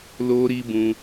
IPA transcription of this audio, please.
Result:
l o˧ ɾ i˧ b ũ˧

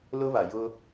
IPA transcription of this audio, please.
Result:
l ʊ˦ β a˨ j ʊ˦

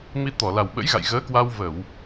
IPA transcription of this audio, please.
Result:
m i˧ t̪ ɔ˧˩ l a˨˩ w ɓ ə̰˧˥ j ɣ a̰˧˨ j ɣ əː˨˦ k w a˧ w v ə˧˩˨ w

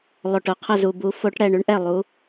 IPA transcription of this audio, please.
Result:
lˠ o˨˩ ʈ ʊ˥˩ qʰ ə˥˩ z u˨˩ b u˨˩˦ f o˨˦ ʈ ɽ ɛ˥˩ ɳ ʉ˦ ɳ ʔ ɛ˥˩ lˠ u˨˦

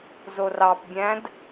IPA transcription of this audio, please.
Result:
z o r ɑ p bʲ æ̃ d

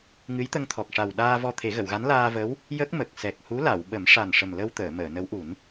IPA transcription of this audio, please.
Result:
ŋ ɨ˧˥ j t̪ ə˧ ŋ t̪ʰ ɔ˨˩ k̚ ʂ a˨˩ w ɗ aː˧ v ɔ˧ t̪ʰ e˨˩˦ ɣ ə˨˩˨ w ɣ a˧˥ n l aː˧ v ə˧˥ w | j ə˦˥ k̚ m ə˨˩ k̚ s ɛ˨˩ k̚ h u˧˥ l a˨˩˨ w ɓ ə˨˩˦ m ʂ a˨˩ n ʂ ə˨˩ m l ə˧ w t̪ əː˨˩˨ m əː˨˩˨ n ə˧˥ w ʔ u˨˩˦ n

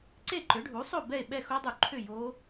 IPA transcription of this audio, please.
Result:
ǀ e˥˨ ǃ ʏ˩˥ ɖʱ u˩˥ sˤ o˥˨ b ɛ˥˨ e̯ ɓ ɛ˥˨ x o˦˥ dˤ u˨˩˦ ǃʰ ʏ˥˨ j o˦˥

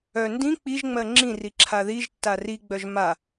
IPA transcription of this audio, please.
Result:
œ n d ĩ k͡p i ʒ ŋ͡m ɜ ŋ͡ǁ ĩ r i ǁʰ a ð i ʒ tː a r i ɡ͡b œ ʒ m a

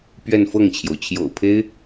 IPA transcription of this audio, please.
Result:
p ɥ ɛ˥˧ n f ɤ˥˩ ŋ t͡ɕʰ j o˩ ʊ̯ t͡ɕʰ j o̰˨˩ ʊ̯ pʰ e˥ ɪ̯

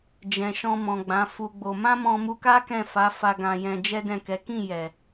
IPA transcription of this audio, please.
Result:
d͡ʒ ɛ̃˨ ʃ ɔ̃˧ m ɔ̃˨ ɡ͡b ã˨˦ f u˧ ɡ͡b o˧ m ã˦ m ɔ̃˧ m u˧ k a˦ k ɛ̃˦˨ f a˨˦ f a˧ ɡ ã˧ j ɛ̃˧ d͡ʒ ɛ˦ d ɛ̃˦˨ k ɛ˨˦ k ĩ˦˨ j ɛ˨

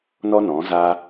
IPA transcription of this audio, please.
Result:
n ɔ˦ n ɔ̃˨˦ z a˦

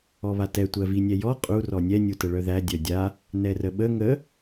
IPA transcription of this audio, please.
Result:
ɔ β a t ɛ tʷ ɜ v i nʲ ɛ j ɔ qʼ u r ɔ nʲ ɛ nʲ u t ə ɭ œ ð æ dʲ œ dʲ a | n ɛ r ə ɓ ə ŋ ə

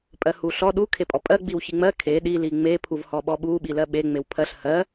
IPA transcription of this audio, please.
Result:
pʼ ɜ h u ɬ ɔ ɗ u kʰ e pʼ ɔ pʼ ɜ ɡ͡b i w ç i ŋ͡m ɜ kʰ e ɗ i l i ŋ͡m e pʰ u v h ɔ ɓ ɔ ɓ u ɓ i l ɜ ɓ e ŋ͡m e w pʰ ɜ ɬ h ɜ

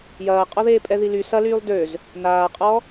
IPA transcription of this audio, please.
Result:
j ɐː qʼ ɔ ð eː pʼ ɛ ð i l y s ɐ l yː lˠ d ø z | n aː qʼ ɔ

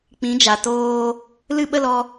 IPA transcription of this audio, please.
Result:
k͡p ĩ˨˦ d͡ʒ a˨ t oː˧ | l ɨ˦ ɓ ə˦ l ɔ˧

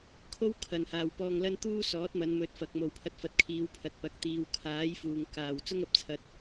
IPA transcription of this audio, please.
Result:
kʰ o˥ w kʰ ɐ˨ n h aː˨ w p ɔː˧ ŋ l ɐ˥ n t̪ uː˥ s ɔː˨˥ t̚ m ɐ˨˧ n m ɵ˨˥ t̚ f ɐ˨ k̚ m o˨ w pʰ ɐ˧ t̚ f ɐ˨˥ t̚ kʰ iː˨˧ w pʰ ɐ˨ t̚ p ɐ˨ k̚ t̪ iː˨ w kʰ aː˨˥ j f uː˨ ŋ k aː˨ w t͡s ʊ˥ ŋ ɐ˨ p̚ t͡sʰ ɐ˧ t̚

